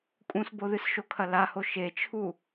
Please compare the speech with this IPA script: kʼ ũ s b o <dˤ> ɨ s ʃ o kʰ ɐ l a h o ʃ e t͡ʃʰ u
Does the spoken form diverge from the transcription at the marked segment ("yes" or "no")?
yes